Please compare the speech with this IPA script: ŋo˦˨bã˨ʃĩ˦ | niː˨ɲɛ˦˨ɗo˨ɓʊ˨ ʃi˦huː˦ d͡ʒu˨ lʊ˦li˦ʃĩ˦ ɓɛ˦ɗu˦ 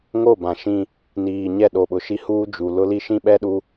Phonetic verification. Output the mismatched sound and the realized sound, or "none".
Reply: none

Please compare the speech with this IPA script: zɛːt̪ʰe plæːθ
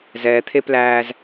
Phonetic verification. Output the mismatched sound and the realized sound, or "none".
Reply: θ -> z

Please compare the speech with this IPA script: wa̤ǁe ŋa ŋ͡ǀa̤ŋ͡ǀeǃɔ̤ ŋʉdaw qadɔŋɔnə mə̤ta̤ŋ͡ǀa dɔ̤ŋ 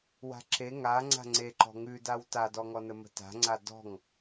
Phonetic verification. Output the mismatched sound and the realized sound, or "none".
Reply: q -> t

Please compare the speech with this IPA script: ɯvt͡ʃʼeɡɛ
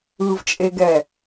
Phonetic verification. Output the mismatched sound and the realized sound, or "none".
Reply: none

